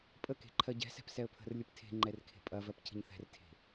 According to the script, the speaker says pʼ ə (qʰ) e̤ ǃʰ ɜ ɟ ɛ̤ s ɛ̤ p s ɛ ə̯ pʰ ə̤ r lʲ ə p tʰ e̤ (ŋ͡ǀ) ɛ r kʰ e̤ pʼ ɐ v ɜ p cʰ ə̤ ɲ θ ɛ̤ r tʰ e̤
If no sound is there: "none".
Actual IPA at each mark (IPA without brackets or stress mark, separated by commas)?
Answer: k, ŋ͡ǃ